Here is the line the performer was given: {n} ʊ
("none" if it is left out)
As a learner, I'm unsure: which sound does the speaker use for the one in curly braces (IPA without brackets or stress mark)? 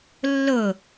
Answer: lː